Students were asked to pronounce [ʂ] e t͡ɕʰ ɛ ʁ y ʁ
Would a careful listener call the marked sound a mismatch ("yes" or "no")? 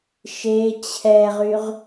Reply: yes